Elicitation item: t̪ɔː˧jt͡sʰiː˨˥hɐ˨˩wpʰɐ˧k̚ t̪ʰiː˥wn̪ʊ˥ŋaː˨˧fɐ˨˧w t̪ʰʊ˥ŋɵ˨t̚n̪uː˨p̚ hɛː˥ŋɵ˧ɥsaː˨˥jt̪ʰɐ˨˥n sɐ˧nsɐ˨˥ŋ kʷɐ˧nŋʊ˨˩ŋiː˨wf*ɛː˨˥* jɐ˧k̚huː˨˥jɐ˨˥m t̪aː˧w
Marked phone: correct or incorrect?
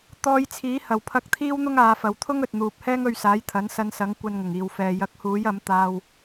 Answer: incorrect